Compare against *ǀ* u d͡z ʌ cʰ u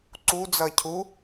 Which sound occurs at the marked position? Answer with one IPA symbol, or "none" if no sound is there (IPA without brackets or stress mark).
ǀ